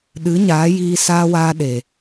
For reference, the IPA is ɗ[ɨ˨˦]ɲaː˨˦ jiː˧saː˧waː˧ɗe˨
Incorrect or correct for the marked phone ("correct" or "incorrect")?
correct